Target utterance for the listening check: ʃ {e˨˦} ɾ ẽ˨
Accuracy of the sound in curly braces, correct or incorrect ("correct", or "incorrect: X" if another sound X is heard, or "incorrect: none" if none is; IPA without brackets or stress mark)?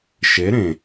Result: correct